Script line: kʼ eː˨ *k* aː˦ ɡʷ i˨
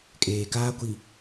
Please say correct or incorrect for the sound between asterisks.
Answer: correct